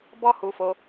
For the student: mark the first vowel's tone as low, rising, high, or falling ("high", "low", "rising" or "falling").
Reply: high